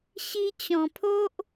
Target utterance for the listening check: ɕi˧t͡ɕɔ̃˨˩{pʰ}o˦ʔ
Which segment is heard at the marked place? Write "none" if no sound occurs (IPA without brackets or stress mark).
pʰ